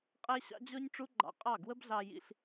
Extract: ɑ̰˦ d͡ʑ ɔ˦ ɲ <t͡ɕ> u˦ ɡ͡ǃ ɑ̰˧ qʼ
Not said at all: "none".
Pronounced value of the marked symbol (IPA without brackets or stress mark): ʈ͡ʂ